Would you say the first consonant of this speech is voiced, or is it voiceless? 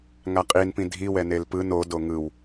voiced